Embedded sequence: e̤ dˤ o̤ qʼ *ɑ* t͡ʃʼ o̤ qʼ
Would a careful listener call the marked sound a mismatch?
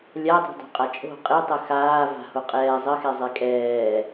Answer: yes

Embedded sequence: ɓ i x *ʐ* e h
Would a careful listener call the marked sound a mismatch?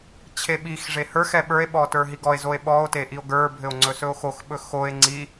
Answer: no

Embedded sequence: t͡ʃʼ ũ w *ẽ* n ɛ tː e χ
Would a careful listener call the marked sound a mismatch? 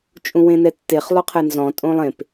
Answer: no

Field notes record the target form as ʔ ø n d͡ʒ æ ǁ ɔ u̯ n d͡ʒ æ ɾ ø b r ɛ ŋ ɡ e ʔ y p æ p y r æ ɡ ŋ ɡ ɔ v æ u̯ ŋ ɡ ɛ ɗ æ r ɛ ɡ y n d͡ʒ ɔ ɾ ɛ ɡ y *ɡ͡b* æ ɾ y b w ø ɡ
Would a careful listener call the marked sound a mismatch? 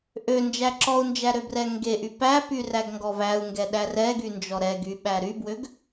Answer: yes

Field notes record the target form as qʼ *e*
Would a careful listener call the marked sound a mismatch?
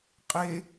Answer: no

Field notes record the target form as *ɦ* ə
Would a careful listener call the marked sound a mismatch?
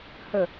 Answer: yes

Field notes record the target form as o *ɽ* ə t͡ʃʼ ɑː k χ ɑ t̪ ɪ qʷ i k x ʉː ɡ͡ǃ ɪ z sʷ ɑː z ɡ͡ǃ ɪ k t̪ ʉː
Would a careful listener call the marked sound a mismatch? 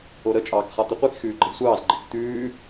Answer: yes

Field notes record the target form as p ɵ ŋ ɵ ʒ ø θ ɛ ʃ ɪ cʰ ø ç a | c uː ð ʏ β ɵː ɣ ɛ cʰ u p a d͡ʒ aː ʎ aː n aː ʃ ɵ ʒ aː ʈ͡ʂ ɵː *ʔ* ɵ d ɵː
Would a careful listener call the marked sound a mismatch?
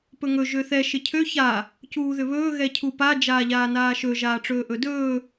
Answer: no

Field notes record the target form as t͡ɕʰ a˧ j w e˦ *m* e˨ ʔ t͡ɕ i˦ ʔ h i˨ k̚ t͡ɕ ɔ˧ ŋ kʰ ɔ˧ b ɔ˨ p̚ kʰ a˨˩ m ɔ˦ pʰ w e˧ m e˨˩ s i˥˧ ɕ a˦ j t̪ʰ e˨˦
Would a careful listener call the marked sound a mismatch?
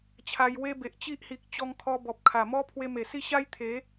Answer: yes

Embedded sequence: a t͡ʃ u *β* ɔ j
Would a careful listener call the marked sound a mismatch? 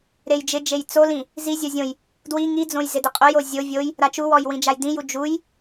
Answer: yes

